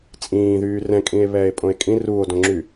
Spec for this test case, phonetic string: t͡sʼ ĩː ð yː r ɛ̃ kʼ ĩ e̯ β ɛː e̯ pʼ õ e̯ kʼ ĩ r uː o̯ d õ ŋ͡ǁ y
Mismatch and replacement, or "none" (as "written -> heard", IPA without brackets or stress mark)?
none